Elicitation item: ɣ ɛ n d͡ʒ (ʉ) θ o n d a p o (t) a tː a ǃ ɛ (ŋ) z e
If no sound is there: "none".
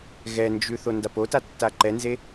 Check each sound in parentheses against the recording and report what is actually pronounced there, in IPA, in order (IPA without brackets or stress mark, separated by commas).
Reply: ʉ, t, n